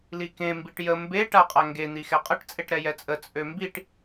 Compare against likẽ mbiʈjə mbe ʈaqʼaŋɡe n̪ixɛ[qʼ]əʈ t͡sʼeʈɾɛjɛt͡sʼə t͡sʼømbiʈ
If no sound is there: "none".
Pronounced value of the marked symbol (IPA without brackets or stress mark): qʼ